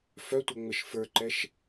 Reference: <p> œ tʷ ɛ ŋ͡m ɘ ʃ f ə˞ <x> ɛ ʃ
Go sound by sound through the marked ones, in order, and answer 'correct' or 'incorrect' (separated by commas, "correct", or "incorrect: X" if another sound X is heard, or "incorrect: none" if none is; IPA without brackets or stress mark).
incorrect: f, incorrect: ǃ